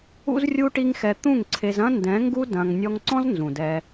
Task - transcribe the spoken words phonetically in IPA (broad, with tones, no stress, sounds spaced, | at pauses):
ṵ˦ z rʲ u˦ ʈ i˦ ŋ x ɛ˧ t̪ ũ˦˨ ŋ ǀʰ e˧ z ɐ̃˦ n d ɛ̃˨˦ ŋ ɡ u˦ d ɐ̃˧ ŋ nʲ ɔ˦ ŋ ǀ ɔ̃˦ z n z ũ˨ d ɛ˧